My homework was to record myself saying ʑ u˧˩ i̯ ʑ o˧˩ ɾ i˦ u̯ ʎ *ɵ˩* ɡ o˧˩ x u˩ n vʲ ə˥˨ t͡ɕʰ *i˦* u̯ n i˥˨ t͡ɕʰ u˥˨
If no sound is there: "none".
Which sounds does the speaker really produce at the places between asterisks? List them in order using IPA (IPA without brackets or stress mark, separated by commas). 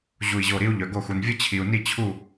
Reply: œ˩, i˩